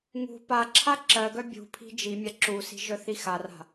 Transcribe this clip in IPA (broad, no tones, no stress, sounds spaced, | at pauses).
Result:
ŋ ṳ p a ǁʰ a ǁ ɜ ɡ œ bʲ ṳ pʰ i̤ d͡ʒ i mʲ a ǁ u s i̤ ʒ œ θ i x a r a̤